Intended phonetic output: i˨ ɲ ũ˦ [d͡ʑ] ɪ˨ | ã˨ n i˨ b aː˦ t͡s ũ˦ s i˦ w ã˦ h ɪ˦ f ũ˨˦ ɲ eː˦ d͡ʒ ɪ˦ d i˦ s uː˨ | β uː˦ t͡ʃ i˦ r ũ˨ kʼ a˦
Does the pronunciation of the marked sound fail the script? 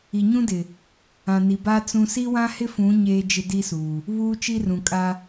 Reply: yes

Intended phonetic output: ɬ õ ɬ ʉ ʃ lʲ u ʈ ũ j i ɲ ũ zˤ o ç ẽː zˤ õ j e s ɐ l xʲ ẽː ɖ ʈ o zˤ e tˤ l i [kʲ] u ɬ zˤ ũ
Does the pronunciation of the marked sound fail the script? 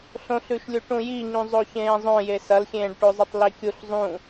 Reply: no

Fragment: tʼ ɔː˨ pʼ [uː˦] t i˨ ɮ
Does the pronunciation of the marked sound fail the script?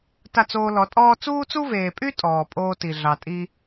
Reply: yes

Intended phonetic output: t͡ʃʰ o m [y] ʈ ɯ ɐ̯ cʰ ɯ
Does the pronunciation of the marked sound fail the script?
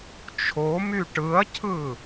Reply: no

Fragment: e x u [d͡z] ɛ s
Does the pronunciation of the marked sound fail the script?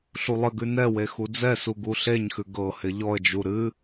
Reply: no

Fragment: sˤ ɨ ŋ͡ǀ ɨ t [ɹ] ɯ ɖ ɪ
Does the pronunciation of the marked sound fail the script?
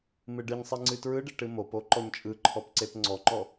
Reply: no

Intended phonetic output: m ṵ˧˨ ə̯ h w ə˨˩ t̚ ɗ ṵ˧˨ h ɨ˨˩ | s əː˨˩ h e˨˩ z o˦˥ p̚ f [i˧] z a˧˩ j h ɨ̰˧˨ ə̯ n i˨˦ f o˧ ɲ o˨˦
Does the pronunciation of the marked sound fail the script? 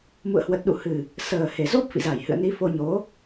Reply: yes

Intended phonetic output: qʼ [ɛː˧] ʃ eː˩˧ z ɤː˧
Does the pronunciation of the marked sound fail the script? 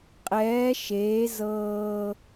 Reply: yes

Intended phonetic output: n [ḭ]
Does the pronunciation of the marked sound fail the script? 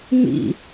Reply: no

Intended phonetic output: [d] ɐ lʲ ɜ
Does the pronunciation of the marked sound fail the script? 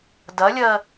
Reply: no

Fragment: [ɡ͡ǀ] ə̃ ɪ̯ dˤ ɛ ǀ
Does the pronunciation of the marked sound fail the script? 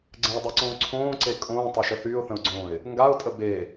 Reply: no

